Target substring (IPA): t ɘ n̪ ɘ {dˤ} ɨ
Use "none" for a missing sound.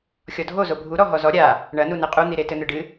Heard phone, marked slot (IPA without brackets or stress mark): ɖ